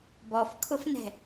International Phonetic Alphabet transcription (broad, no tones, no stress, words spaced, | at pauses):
bɔfkʰʊfnɛ̤